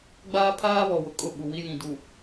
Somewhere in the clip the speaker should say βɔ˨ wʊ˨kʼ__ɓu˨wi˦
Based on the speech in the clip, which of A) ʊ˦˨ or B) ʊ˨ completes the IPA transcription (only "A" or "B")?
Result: A